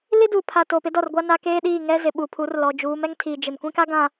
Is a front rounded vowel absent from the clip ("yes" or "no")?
yes